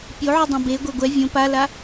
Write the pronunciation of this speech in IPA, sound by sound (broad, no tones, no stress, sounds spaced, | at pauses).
pʲ o ʕ u dˤ õ b e ɡʷ e ɡʷ ɛ vʲ õ p a l a